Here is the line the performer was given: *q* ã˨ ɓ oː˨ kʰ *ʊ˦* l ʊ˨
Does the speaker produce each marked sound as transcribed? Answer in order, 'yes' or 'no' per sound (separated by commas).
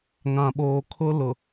no, yes